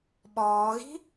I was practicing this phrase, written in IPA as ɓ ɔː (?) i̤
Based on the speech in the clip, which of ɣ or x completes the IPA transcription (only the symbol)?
ɣ